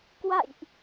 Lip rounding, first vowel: unrounded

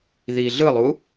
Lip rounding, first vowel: unrounded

